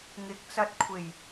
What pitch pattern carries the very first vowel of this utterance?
rising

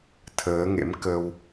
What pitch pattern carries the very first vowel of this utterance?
rising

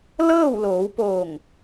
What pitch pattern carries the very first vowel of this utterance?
falling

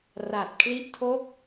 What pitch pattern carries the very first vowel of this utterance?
low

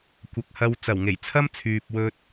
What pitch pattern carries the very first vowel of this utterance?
rising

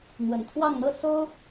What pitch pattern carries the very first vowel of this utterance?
low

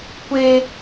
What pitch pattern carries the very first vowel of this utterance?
high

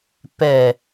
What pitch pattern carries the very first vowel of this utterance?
low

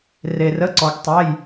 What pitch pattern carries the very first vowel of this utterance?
low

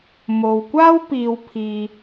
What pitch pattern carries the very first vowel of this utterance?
low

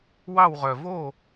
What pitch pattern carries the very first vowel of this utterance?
falling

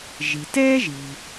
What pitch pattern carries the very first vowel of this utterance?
low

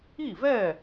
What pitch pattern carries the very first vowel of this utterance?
falling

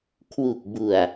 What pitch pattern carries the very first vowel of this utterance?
low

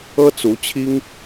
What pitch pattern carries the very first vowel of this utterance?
high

